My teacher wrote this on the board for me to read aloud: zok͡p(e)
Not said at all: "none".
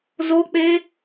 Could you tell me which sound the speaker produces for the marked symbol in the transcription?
e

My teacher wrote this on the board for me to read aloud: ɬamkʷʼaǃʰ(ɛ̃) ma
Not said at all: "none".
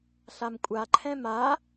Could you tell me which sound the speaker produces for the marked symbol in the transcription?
ɛ̃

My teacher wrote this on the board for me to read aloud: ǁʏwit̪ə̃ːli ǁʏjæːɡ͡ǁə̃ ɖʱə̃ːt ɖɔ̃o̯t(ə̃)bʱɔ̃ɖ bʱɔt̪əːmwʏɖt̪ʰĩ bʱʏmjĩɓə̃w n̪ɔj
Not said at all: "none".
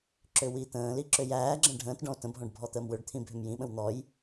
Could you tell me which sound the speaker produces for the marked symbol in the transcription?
ə̃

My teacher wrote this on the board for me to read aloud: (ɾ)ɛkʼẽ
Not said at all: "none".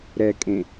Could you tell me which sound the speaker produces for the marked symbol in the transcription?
ɾ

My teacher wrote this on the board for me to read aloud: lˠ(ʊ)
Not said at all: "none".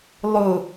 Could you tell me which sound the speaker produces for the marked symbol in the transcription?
ʊ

